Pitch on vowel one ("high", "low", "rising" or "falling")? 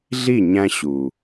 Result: falling